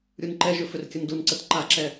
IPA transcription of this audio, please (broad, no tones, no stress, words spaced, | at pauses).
ɾʲunǃɛʒʏ fʏrkʲəndunǀət ǃaǁɛ